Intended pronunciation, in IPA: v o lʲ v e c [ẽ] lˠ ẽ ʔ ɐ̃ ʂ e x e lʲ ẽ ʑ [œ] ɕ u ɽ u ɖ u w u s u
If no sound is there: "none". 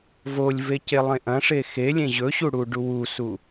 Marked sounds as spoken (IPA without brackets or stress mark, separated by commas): e, ɵ